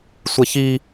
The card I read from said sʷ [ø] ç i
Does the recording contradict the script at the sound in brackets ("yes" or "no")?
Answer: yes